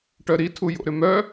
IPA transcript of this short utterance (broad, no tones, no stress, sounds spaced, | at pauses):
ʈ œ ɾ i tʰ u j o̰ ɾ ʏ m œ